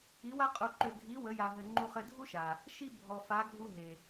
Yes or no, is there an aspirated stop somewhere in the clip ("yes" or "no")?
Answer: no